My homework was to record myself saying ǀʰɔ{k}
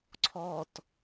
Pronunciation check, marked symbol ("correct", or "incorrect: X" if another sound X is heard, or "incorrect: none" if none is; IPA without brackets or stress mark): incorrect: t